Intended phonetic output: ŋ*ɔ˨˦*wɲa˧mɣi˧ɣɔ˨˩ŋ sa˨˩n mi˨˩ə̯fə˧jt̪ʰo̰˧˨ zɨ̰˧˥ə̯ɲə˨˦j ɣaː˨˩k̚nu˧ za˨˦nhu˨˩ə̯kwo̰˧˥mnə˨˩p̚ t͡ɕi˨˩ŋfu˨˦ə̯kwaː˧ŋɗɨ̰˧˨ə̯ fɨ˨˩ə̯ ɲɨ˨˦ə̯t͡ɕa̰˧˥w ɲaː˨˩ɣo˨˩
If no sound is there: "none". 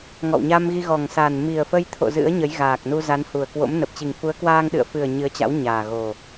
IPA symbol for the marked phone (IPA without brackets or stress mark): ɔ̰˧˨